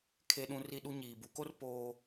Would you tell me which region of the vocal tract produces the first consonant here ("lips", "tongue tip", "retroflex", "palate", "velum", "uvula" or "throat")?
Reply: velum